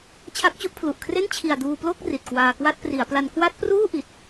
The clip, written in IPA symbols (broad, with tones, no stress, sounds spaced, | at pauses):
t͡ɕʰ a˦˥ k̚ t͡ɕ u˥˩ ʔ pʰ l u˨˩ ʔ kʰ r e˥˩ n t͡ɕʰ i˨˩ a̯ d uː˧ p l o˥˩ k̚ r i˨˩ t̚ k w aː˧ k w a˥˩ t̚ p r i˩˦ a̯ p l a˧ n k w a˦˥ t̚ p r uː˥˩ ʔ i˦˥ t̚